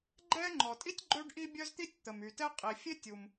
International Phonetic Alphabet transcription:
ɡ͡ǃɛ˥ ŋ͡ǃɔ˩tʼi˥tʲ ɡ͡ǃø˥ɖ ʔi˥bʲœ˥z t̪i˥tʲt̪ə˩m y˩tɛ˥ qʼi˩fʲe˥ tʲu˩m

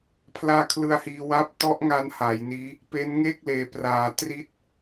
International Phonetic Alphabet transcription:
pʰlaː˦˥kʰlɯ˧a̯hiː˧ wa˦˥p̚ tɔ˦˥ʔŋa˧n ha˩˦jniː˦˥ | pe˦˥nŋeː˥˩k̚ leː˩˦ praː˩˦ tri˦˥t̚

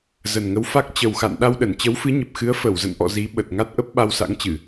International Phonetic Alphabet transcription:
zə˨˩nŋə˨˦wfa˦˥k̚ t͡ɕə˨˩wxa̰˧˨n ɗa˧wɗə˧˩nt͡ɕə˨˦w fɨ˨˦ɲə˨˩p̚xɨ˨˦ə̯ fə˧˩wzə̰˧˨nʔɔ̰˧˨ zi˨˦ɓə˨˩t̚ ŋa˦˥t̚ʔə˦˥p̚ ɓa˧wsa̰˧˥ŋt͡ɕɨ˧˩˨

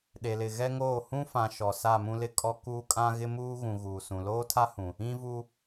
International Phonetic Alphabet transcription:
ɗe˨lɪ˨ ɣɛ˦ŋoː˦˨ hũ˦fã˨ ʃɔ˨ sa˦˨mũ˦lɪ˦kʼɔ˦ kuː˦kʼã˦ ɣɪ˦muː˦ ɣũ˨ ɣuː˨sũ˨ loː˦tʰa˦hũ˨ | ĩ˦vu˦

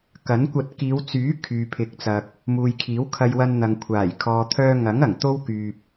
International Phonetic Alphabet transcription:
kɐ˨˥nkʷɐ˧t̚ kiː˨˧wt͡syː˨˥ kʰyː˨pʰɪ˨˥k̚t͡sɐ˨k̚ | muː˨jkʰiː˨˥wkʰɐ˧j wɐ˧nn̪ɐ˨ŋ kʷʰaː˨˩j kʰɔː˧ t̪ʰœː˧ŋɐ˨˥ŋ ɐ˨˩ŋt̪o˥wkyː˨p̚

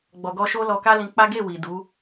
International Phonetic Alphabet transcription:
ɡ͡bɔ˨ɡɔ˧ʃo˦ lɔ˧ka˦lĩ˧k͡pa˦ ɡe˦˨wi˨ du˨˦

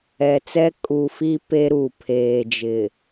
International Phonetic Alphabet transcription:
ɛ˨t͡sɛ˦ kʼu˨ fi˦ pe˦ɾu˨ pʰeː˨d͡ʒɪ˨

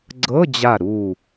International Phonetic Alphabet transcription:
ɡ͡ǀɤ˧˥˧d͡ʑa˧˩ ɾu˧˩

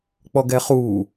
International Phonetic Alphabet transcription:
k͡pɔɡɛχuː

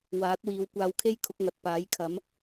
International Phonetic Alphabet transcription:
waː˨˥t̚wiː˨˧w kʷaː˧wkʰe˥jkʰʊ˨˥k̚ŋɐ˨t̚ paː˨˥jkʰɐ˨˥m

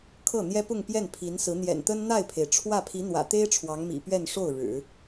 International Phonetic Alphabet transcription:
kʰɤ˥˩n̪jɛ˥pʊ˥˧ŋ pjɛ˥˩npʰi˧˥nsɹ̩˧˥ n̪jɛ̰˨˩nt̪ə˥n n̪a˥˩ɪ̯pʰe˩ɪ̯ʈ͡ʂʰwä˥˩ pʰi˧˥n̪wä̰˨˩t̪e˥ɪ̯ ʈ͡ʂʰwɑ˧˥ŋmḭ˨˩ pɥɛ˥˧nʂo˥˩ʊ̯ ɻɻ̩˨˩˦

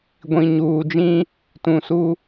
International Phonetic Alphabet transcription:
ɡʷĩ˨ɲuː˨d͡ʒĩ˦ | tũ˨su˦

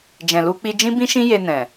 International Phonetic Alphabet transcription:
d͡ʒɛ̃˨lu˧ k͡pi˧d͡ʒĩ˦bĩ˦ʃĩ˦ je˧nɛ̃˨

